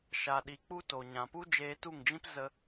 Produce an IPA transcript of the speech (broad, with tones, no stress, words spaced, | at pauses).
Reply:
ʃa˨ɗi˨ k͡pu˦to˨ ɲã˨pu˦ d͡ʒeː˧tu˦˨ŋd͡ʒĩ˦p zə˧